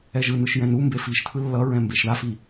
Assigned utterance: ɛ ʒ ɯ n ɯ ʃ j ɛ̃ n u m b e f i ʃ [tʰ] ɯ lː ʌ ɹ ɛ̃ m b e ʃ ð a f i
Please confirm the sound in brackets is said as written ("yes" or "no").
yes